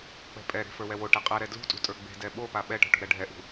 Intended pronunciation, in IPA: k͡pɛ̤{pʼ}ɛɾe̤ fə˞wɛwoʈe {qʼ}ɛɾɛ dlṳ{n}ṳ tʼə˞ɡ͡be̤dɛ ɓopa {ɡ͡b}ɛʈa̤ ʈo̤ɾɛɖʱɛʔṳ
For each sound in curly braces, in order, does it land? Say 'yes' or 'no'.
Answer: yes, yes, no, no

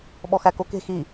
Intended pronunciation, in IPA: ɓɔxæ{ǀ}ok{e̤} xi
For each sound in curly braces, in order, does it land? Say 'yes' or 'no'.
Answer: no, yes

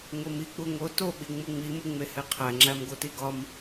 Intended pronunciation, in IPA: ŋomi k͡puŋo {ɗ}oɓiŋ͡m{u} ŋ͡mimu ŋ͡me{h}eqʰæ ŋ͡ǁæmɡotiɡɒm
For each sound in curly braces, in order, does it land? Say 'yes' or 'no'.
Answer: no, yes, yes

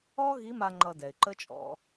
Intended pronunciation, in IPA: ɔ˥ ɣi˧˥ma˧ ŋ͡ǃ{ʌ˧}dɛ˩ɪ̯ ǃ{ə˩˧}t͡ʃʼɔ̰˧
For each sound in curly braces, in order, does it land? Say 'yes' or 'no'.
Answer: yes, no

